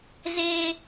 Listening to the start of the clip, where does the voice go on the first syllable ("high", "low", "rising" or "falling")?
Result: high